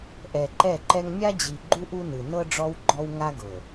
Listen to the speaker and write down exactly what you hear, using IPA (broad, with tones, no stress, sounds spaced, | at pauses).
ʔ ɛ˨ ǃ ɛ˦˨ ǃ ɛ˦ ŋ mʲ a˦ d͡ʑ i˨ ɡ͡ǃ u˦ ʔ u˦ n ɯ˨ n ɤ˦ ɖ͡ʐ ɔ˦ w ɡ͡ǃ ɔ˦ w ŋ a˦ ɡ ɤ˨